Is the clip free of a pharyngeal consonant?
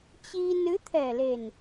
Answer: yes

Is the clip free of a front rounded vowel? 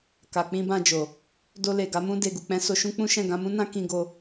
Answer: yes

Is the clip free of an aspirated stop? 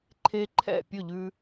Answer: no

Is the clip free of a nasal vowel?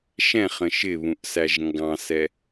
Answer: no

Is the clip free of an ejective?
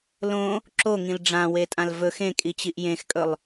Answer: no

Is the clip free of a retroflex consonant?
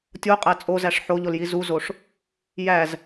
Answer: no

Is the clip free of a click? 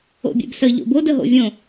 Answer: yes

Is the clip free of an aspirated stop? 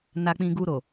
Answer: yes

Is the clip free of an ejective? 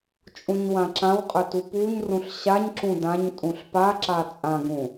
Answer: no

